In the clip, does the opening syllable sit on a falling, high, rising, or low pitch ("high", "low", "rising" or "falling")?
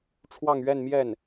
falling